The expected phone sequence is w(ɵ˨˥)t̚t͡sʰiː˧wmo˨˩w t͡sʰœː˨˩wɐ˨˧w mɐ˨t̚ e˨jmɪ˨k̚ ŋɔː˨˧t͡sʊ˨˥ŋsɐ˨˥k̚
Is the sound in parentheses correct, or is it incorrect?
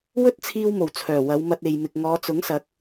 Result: incorrect